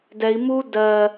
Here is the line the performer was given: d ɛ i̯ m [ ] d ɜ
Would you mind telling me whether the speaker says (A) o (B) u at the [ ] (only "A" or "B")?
B